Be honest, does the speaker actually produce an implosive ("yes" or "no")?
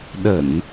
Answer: yes